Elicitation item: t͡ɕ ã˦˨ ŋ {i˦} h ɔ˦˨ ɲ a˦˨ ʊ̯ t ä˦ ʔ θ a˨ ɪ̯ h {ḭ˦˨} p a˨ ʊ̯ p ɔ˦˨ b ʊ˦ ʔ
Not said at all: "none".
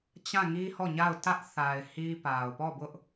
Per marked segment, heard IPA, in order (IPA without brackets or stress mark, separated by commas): i˦, i˦